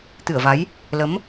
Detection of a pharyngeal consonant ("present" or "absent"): absent